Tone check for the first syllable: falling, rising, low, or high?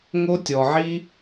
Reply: high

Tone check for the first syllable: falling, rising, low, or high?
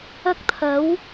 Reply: high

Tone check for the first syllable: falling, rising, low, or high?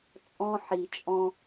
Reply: high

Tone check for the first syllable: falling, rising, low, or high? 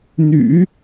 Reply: low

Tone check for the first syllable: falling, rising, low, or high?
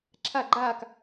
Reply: falling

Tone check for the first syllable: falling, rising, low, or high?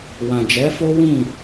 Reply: low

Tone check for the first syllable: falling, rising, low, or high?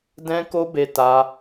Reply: high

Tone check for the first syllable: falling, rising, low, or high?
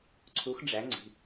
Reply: rising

